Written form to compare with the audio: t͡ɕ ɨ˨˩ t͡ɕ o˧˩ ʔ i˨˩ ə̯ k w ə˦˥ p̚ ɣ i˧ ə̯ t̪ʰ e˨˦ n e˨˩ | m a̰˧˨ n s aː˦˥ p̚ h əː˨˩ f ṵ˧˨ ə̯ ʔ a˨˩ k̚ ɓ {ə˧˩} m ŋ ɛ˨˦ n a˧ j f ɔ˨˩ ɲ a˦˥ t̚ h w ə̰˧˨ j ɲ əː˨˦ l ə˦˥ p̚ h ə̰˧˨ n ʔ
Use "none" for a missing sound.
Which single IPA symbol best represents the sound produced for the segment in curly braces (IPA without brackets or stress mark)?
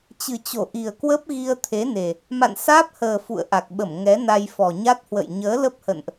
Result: ə˧˩